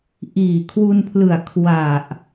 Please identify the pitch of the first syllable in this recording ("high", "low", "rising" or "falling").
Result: low